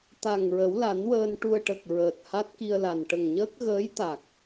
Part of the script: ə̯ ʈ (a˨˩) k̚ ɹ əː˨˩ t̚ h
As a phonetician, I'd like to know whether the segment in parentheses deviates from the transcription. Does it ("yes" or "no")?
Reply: yes